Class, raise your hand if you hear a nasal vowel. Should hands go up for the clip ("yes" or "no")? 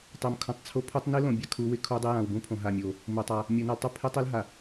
yes